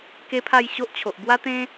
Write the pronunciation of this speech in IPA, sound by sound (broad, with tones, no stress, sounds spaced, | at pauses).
k e˦ pʰ a˥˧ j ɕ o˦ ʔ t͡ɕʰ o˨ ʔ b w a˦ t̪ ẽ˦